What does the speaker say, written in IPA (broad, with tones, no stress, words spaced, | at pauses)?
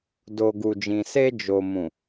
do˨ ɡu˨d͡ʒĩ˨ se˧d͡ʒo˨mũ˨